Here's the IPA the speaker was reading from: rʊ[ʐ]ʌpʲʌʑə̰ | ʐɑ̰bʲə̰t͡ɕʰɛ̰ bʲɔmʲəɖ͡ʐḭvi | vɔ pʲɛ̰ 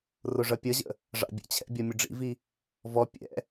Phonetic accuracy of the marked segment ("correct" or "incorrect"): correct